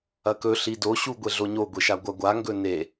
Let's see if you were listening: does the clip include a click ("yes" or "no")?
no